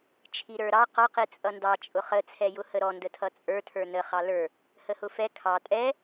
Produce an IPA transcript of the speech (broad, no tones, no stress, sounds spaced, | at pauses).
t͡ʃʰ i ɾ ə˞ ɾ ɑ q ɔ q i t͡sʼ ʌ n d ɑ t͡ʃʼ ʊ χ ə t͡sʰ ɛ j ʊ h ə ɾ ɔ n d ə tʰ ʌ t͡sʼ ə˞ tʰ ə˞ n ə χ ɑ l ə˞ | h ə h ʊ f ɛ kʰ ɑ tʼ ɛ